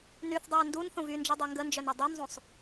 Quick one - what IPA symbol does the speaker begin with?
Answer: n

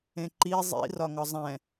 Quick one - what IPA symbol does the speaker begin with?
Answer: ẽ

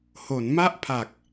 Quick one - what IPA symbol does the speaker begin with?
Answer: h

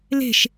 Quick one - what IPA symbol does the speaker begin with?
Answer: l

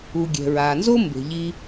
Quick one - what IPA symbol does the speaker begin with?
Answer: u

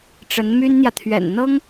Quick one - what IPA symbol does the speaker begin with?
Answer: ʈ͡ʂ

